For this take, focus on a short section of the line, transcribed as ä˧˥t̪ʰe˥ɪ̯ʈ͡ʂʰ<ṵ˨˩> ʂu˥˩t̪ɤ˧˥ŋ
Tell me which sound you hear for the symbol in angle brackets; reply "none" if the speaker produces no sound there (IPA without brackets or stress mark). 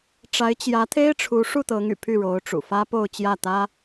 u˧˥